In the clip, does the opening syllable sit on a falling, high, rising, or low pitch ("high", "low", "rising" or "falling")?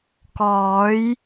rising